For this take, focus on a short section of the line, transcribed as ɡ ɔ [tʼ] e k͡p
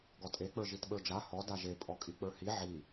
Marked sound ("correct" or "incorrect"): correct